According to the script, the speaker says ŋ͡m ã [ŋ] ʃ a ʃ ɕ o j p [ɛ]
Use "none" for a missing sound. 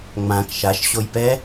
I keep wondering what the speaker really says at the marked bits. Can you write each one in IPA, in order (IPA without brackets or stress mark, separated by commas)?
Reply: k, ɛ